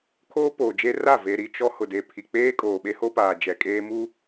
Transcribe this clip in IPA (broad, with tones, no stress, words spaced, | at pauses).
kʰoː˦poː˨d͡ʒe˦ra˦˨ ve˨ɾi˨ t͡ʃɔ˦ hʊ˨de˨ pʰi˨k͡peː˦kʼoː˨ɓe˦ ho˦paː˨ d͡ʒɛ˨kʼeː˦ mu˦